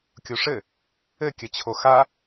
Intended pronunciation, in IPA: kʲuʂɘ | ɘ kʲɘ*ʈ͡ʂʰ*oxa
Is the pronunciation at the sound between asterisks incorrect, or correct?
incorrect